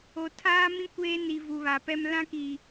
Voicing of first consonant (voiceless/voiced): voiceless